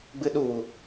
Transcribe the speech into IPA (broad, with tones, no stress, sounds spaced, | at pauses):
ɡ͡b ɨ˦ ɗ u˦˨ w u˨